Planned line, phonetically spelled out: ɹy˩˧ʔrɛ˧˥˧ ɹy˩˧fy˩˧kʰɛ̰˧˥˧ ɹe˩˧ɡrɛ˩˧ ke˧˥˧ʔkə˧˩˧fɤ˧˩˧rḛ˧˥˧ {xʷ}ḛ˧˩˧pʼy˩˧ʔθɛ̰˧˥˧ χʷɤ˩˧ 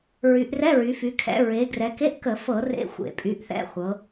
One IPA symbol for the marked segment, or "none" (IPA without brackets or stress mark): xʷ